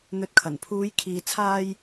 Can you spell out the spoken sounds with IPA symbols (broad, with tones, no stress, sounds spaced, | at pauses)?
n̪ ɵ˨ t̚ kʰ ɐ˨˩ n pʰ uː˨˧ j kʰ iː˨ t͡sʰ aː˧ j